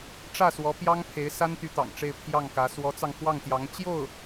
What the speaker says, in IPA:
ʈ͡ʂ ä˥˩ s w ɔ˧˥ p j ɑ˥ ŋ pʰ e˧˥ ɪ̯ s a˥ n t̪ y˧˥ t̪ ɑ̰˨˩ ŋ ʈ͡ʂ e˥˧ ɪ̯ pʰ j ɑ˥˩ ŋ k ä˧˥ s w ɔ˧˥ t͡s ɑ˧ ŋ x w ɑ˥˩ ŋ t̪ j ɑ˧˥ ŋ t͡ɕ j o˥˩ ʊ̯

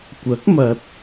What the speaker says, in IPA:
kʷ ɐ˨˥ k̚ m ɐ˨ t̚

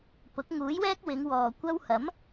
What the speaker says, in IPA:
p ʊ˨˥ k̚ ŋ uː˨˥ j w ɛː˥ k̚ w ɪ˨˧ ŋ w ɔː˨ kʷ ɐ˥ w h ɐ˨˥ m

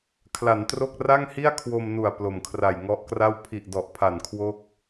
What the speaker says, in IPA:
kʰ l a˩˦ n t r o˥˩ k̚ r a˥˩ ŋ h i˥˩ a̯ kʰ w o˧ m n u˨˩ a̯ p l o˨˩ m kʰ r a˨˩ j ŋ ɔ˦˥ ʔ k r a˥˩ w pʰ i˨˩ ʔ d ɔ˨˩ ʔ pʰ a˨˩ n kʰ w o˦˥ k̚

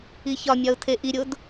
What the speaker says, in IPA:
i ç ɒ mʲ ɒ ʊ̯ tʰ e ʔ i ɾʲ o d

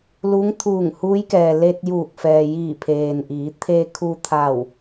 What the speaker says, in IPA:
l u˧˥ ŋ t̪ʰ uː˧˩ ŋ h uː˧˥ j k ɛː˩ l e˧ t̚ j uː˧˩ k̚ f ɛː˩ j iː˧˩ pʰ eː˩ n ʔ iː˩˧ t̪ʰ e˧ kʰ u˧ t̪ʰ a˧˩ w

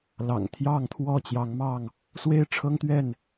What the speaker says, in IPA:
l ɑ̰˨˩ ŋ t̪ʰ j ɑ˥˨ ŋ t̪ʰ w ɔ˥˨ t͡ɕ j ɑ˨˦ ŋ m ɑ˥˨ ŋ | s w e˦ ɪ̯ ʈ͡ʂʰ ɤ˦ ŋ t̪ ɥ ɛ˥˨ n

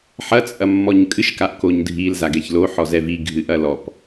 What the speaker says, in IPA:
ħ ɐ t͡sʼ ɐ mː ɔ ɲ kʼ ɨ ʃ k a ʔ k o ɲ dʱ i l z a ɡ ɛ ç l o ħ ɔ z ɛ v i ɡʱ ɨ ʔ ɐ l ɔ p

